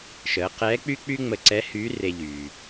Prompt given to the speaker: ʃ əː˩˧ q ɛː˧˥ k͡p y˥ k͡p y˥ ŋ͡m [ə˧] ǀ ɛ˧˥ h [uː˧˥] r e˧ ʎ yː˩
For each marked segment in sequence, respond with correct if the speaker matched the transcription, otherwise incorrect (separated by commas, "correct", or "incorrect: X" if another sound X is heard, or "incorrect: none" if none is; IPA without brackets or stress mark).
correct, incorrect: yː˧˥